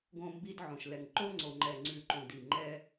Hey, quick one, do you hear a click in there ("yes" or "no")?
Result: yes